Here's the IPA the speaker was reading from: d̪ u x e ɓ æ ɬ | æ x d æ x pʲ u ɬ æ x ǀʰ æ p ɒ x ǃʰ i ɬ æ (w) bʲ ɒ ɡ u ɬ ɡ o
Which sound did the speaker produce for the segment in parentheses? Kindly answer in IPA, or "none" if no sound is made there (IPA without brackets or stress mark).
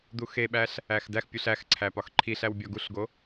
w